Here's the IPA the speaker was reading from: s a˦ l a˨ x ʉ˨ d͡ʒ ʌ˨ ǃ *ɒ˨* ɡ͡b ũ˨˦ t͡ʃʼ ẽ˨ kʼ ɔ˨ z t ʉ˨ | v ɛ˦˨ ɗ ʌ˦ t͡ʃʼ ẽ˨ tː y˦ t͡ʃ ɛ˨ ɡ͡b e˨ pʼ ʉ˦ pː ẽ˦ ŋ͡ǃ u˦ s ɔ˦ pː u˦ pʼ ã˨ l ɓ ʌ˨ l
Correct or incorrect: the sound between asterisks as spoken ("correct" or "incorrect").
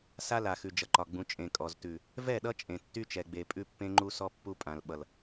correct